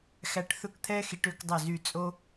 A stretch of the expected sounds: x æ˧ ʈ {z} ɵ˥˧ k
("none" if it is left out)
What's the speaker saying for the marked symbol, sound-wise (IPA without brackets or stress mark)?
θ